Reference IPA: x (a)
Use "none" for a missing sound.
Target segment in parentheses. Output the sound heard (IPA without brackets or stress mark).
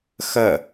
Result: ɐ